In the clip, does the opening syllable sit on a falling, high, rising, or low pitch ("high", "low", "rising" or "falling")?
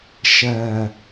low